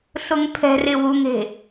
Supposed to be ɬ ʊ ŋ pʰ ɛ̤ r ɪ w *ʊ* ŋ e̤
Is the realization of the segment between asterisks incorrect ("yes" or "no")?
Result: yes